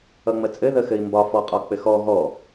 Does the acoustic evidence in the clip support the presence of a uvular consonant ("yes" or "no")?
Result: yes